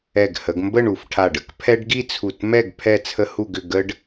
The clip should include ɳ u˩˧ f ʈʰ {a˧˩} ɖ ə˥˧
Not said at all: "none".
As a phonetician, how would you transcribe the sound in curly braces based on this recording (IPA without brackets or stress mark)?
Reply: a˧˩